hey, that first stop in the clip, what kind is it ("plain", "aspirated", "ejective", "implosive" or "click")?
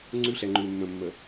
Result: click